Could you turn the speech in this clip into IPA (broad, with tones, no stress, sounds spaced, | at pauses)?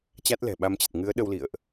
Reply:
t͡ɕ a˦˥ t̚ l ɛ̤˨˩ ɓ a˧ m t͡ɕ ə˨˩ t̚ ŋ ɨ˨˦ ə̯ ɗ ə˧ w l ḭ˧˨ ə̯ ʔ